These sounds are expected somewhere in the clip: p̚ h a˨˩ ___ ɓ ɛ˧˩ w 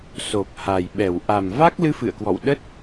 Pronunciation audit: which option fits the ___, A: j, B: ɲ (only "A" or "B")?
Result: A